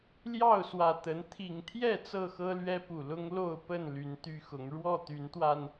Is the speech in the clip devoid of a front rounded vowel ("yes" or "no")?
no